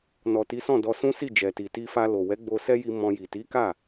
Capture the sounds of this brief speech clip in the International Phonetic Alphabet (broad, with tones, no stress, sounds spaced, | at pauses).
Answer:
n ɔ˨ t i˨˦ s ɔ̃˦˨ d ɔ˧ s ũ˦ s i˦˨ d͡ʒ ɛ˨ t i˨ t i˧ f a˧ l o˨ w ɛ˨˦ ɡ͡b o˧ s ɛ˦ j i˧ m ɔ̃˧ j i˨ t i˨˦ k a˦˨